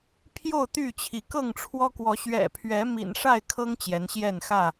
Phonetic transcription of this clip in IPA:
pʰjo˥˨ʊ̯t̪y˥˨t͡ɕʰi˨˦ kɤ˥˨ŋʈ͡ʂʰwɔ˦kwɔ˨˦ ɕɥɛ̰˨˩pʰɥɛ˨˦ mḭ˨˩nʂa˥˨ɪ̯kʰɤ˦ŋ t͡ɕjɛ˨˦nɕjɛ˥˨nxä˥˨

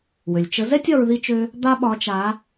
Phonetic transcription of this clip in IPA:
wø˩lʲt͡ʃə˧˥ zɛ˥tʲɒ˧ɹ ði˧t͡ʃø˧ | d̪a˥ɓɒ˧˥t͡ʃa˧˥

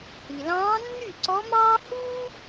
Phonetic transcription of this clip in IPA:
hi˩lɑ̃ː˧˥ nːy˥˩ǀɔ˧˥mɑː˥ huː˥

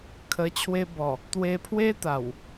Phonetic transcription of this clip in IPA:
kʰə˧ t͡ɕʰwe˧bɔ˨˩ | t̪we˧pʰwe˦t̪a˨˩w

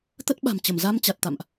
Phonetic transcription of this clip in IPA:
t̪ə˦˥t̚ ɓa̤˨˩m t͡ɕə˧˩mza˧mt͡ɕa˨˩t̚t̪a̰˧˨mʔ

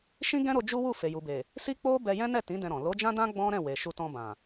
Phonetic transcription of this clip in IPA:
ʃĩ˦ɡɛ̃˦ɾo˧ d͡ʒu˦wu˦˨ fe˨ju˨be˨ | si˦k͡po˦ bɛ˧jɛ̃˦nɛ˦˨ tĩ˨˦ dɛ̃˧ɾɔ̃˨ lo˨˦d͡ʒã˦dã˦ ɡ͡bɔ̃˦ɾɛ̃˦˨we˨ ʃu˧tɔ̃˧ bã˨

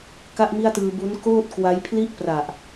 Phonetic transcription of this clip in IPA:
ka˥˩ʔmi˥˩a̯tɯː˧ bu˦˥n koː˥˩t̚kwa˦˥jpʰli˥˩ʔpra˨˩ʔ

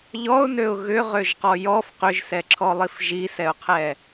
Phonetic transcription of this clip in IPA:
ʎɔʊ̯nøʊ̯ ɣʏʁøʒqɔ jɔf qʏʒsɛǁʰɔlˠif ʒisɛʊ̯qʰɛ

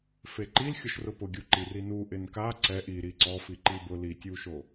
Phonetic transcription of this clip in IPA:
feǃilxʲoʃ rʊpʊɡʲu ǃirinu ʔɪnka ǀɛ ʔi ɾiǀɔfi ǃibʊ litʲuʃo

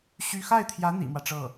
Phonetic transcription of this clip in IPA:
ɕy˥ xa˥˩ɪ̯t̪ʰjä˧˥ n̪ḭ˨˩mwä˦ʈ͡ʂɤ˥˩

